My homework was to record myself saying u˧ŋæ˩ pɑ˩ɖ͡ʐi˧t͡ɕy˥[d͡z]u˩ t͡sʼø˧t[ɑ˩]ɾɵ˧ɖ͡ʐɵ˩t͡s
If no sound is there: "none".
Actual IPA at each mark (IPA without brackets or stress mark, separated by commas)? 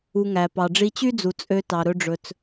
d͡z, ɑ˩